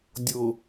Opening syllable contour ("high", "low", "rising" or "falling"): low